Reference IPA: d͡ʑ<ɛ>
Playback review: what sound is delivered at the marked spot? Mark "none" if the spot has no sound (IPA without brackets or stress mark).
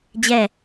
ɛ